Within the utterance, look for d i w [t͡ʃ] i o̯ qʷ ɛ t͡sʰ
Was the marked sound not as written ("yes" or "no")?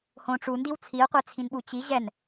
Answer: yes